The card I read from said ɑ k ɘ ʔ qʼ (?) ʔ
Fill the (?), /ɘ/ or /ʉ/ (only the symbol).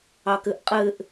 ɘ